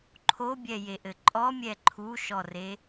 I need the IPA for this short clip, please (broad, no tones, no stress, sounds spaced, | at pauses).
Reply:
ǃʰ o bʲ ɛ j e ʔ ɘ ǃʼ ɔ mʲ ɛ ǃʰ u ʃ ɔ r e